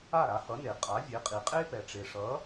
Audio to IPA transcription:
a˥˩ɾa˩˥hʌ˩˥ne˩ qʼa˩˥ vʲe˩˥qʼi˩ qʼe˥pɛ˩ʈ͡ʂe˩ʂʌ˩˥

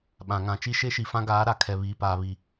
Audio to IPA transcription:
ɓã˨ŋã˨ t͡ʃi˦ʃe˦ʃi˨ fã˦ɡaː˨˦ ɾa˨kʰɛ˨ βiː˨paː˨βi˨

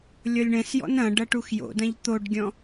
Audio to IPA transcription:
lʲɔlʲɳɛ̃sjɔ̰n ɐ̃ɖɐ ʈuxjo̰dɐ̃ʎ t̪oɖɡʲɔ̃

